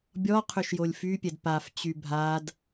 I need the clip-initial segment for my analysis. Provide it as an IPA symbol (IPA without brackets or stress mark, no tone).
bʲ